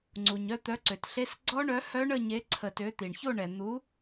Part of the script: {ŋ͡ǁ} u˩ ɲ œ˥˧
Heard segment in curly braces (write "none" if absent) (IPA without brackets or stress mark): ŋ͡ǀ